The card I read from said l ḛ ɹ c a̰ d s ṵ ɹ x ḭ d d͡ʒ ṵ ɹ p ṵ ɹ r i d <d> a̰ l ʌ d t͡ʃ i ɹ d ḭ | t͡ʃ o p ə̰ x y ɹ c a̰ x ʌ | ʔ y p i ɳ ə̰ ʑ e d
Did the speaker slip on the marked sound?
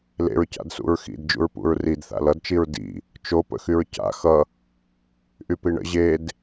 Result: yes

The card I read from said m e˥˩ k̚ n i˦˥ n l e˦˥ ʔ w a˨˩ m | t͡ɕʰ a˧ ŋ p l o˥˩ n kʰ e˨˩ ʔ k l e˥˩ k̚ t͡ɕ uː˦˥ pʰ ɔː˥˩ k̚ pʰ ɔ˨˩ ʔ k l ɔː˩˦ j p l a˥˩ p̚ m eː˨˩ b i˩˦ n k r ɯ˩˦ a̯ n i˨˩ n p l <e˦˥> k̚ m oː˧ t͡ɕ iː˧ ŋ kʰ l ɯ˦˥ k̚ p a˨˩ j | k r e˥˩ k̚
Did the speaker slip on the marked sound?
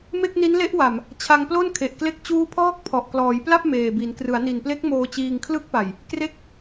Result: no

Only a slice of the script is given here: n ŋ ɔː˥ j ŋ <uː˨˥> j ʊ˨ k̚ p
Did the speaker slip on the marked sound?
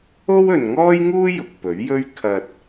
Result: yes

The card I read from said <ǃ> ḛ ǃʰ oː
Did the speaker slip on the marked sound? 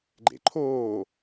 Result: yes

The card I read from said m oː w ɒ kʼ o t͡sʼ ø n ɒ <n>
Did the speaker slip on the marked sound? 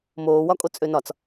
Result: yes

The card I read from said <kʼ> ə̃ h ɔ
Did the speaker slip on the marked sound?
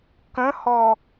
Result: yes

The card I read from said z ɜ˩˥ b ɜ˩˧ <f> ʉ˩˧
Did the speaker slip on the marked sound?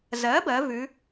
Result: yes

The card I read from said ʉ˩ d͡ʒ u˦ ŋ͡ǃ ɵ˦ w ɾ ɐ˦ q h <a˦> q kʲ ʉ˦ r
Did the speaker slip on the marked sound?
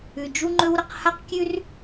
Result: no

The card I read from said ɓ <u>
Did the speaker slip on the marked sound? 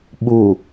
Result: no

